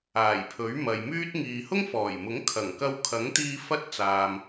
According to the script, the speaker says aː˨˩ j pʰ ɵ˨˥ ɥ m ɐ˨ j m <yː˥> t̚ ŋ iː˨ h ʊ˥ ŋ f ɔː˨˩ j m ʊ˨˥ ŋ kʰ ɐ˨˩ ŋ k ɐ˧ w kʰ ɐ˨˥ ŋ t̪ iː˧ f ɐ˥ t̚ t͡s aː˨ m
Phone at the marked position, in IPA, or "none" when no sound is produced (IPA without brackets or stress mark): yː˥